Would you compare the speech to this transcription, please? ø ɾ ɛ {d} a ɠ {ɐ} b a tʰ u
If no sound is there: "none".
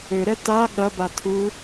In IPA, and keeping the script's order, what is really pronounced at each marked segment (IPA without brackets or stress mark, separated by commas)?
t, ɐ